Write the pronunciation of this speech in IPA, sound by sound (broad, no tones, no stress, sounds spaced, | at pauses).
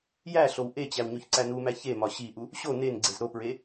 j æ ɬ o w ʔ e t͡ɕ æ w ɲ o ç ǀ æ n u m æ ç e m ɒ ɕ i ʔ u | ɕ o n e n ɡ͡ǀ e z ɾ o p ɹ e